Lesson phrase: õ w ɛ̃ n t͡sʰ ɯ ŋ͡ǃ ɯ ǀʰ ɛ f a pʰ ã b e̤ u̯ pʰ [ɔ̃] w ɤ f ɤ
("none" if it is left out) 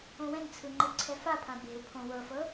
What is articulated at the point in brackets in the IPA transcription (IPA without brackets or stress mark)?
õ